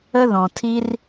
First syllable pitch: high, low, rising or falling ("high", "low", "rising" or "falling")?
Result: high